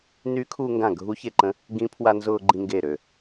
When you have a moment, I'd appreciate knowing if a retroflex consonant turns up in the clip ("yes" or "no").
no